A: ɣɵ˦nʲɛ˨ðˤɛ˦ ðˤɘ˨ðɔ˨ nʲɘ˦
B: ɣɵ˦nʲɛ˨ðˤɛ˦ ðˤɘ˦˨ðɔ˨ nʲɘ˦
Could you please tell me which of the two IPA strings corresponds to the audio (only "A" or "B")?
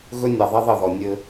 B